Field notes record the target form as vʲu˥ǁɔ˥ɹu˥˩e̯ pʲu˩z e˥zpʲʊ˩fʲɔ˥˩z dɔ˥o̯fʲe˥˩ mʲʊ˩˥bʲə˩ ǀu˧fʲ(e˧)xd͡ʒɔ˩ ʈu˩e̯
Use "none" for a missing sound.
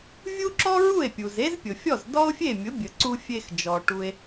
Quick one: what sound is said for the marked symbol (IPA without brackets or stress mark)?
e˧